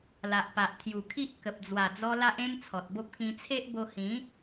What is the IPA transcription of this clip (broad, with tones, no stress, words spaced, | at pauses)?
la˨ʔpa˨ʔ t̪ʰju˨˩kʰi˦ʔ kə˨p̚ d͡zwa˨˩d͡zɔ˧ la˦ʔ ẽ˦mt͡sʰɔ˨t̚bo˦p̚ kĩ˧t͡sʰe˦ʔ bo˧hĩ˨˦